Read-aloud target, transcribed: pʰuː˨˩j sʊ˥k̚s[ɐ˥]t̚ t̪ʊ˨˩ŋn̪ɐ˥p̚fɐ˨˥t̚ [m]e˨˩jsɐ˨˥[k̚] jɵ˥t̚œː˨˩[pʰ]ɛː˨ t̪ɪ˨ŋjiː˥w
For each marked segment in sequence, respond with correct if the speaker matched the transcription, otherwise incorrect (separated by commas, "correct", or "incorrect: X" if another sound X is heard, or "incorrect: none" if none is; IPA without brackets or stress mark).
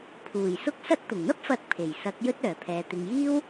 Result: correct, incorrect: pʰ, correct, correct